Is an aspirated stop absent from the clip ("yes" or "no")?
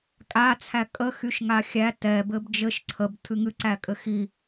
no